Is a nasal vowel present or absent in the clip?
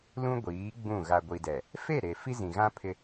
present